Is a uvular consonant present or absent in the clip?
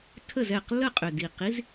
present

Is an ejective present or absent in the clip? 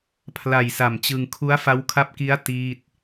absent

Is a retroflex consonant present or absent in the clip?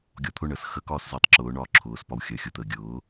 present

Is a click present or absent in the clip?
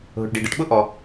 absent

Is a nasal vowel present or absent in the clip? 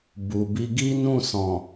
present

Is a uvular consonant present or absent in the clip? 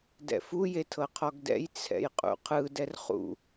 present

